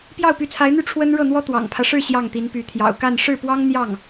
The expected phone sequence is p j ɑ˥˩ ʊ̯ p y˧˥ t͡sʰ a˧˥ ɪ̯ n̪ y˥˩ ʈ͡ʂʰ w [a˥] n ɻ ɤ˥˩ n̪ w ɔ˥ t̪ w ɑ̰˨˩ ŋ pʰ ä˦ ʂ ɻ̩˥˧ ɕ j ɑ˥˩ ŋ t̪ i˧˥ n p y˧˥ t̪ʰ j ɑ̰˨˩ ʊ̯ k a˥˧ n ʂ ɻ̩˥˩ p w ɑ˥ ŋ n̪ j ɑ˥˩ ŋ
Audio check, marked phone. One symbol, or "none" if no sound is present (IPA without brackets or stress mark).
ə˥